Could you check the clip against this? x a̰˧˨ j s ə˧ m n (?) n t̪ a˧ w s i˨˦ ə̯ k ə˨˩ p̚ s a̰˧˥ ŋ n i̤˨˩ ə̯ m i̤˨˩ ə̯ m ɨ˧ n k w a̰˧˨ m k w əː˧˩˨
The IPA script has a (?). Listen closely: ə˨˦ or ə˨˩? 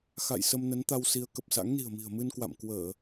ə˨˦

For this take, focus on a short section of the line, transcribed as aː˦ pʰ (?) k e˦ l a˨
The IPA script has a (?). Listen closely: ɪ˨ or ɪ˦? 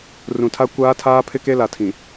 ɪ˦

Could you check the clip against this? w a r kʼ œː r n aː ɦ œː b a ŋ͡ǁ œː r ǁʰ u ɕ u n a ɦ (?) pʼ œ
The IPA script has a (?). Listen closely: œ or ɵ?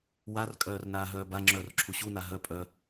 œ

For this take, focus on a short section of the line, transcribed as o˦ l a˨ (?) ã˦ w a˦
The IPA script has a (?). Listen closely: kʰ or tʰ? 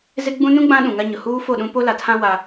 tʰ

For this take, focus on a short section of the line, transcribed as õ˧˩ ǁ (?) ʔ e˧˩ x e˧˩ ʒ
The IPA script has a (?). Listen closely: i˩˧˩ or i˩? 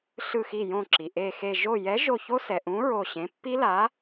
i˩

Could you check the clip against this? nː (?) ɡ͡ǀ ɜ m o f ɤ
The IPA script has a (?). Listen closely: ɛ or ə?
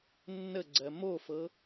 ə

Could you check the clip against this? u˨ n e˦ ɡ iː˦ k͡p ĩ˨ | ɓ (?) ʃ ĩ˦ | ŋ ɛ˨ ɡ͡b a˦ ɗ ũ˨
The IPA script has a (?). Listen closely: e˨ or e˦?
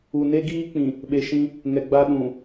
e˨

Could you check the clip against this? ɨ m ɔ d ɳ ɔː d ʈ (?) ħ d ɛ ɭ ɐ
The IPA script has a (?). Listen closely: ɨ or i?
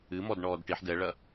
i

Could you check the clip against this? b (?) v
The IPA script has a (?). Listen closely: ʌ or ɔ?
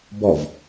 ɔ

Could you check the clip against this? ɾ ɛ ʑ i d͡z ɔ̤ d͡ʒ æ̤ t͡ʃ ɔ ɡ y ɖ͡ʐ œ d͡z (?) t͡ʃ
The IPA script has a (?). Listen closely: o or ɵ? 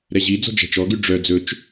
ɵ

